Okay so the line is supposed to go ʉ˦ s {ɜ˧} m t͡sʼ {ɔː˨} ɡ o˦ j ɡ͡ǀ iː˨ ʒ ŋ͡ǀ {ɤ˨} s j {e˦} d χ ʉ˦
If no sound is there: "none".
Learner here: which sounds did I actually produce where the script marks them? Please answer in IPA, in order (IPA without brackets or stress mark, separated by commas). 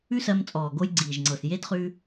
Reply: ɜ˧, ɔː˨, ɤ˨, e˦